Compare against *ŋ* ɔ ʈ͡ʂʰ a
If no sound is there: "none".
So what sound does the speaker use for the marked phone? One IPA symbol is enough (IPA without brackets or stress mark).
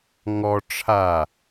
ŋ